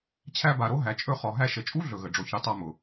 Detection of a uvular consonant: present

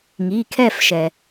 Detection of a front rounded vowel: absent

